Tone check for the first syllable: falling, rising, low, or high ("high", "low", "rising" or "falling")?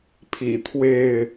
low